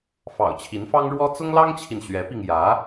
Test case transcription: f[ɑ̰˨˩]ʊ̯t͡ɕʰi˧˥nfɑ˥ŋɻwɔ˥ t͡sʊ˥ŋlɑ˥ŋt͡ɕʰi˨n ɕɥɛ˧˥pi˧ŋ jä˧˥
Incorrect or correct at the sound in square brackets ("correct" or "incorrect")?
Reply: correct